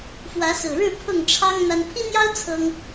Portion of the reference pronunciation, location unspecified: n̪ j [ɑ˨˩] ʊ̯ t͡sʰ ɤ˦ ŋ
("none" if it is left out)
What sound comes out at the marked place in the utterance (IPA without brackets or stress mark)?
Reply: ɑ˦